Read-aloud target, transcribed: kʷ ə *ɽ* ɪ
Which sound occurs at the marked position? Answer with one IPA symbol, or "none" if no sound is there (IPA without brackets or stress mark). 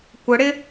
ɽ